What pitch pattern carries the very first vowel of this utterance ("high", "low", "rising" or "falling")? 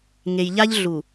low